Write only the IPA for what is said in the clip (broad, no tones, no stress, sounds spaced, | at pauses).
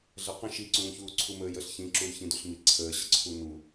ɮ ɜ q ə̃ ʃ i ǀ ũː ç uː ǀʰ u m əː j ə ɬ ç ĩ ǁ u l ç ĩ d u ɬ m i ǀʰ əː ɕ ə ǀʰ u n u